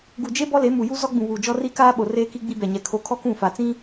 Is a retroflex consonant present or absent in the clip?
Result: absent